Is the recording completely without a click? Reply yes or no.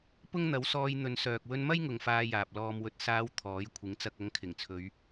yes